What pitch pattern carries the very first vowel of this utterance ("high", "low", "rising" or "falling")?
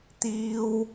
high